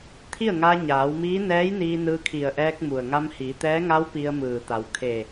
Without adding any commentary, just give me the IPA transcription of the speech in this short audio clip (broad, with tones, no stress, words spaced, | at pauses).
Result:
t̪ʰi˥˨ə̯ŋaː˧ɲaː˩˧wmiː˧˥ nɛː˧˥jniː˧ nɯː˧kʰi˧˩ə̯ʔɛː˧k̚ mu˩ə̯ŋa˧mhiː˩˧t̪ɛː˧˥ ŋa˧˥w pi˧ə̯mɯː˧˩t̪a˩˧w kʰe˧˩